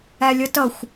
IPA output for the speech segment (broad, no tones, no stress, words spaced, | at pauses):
ælʲʌtʌxʷ